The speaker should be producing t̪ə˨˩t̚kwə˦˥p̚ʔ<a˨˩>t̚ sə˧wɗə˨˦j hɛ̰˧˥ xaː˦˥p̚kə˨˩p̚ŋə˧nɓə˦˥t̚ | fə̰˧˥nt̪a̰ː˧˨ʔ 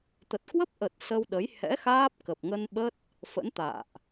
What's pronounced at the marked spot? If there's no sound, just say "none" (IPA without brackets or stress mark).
ə˨˩